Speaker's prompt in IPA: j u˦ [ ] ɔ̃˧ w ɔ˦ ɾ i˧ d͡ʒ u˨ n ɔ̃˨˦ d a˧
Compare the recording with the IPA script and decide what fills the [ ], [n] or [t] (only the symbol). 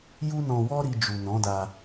n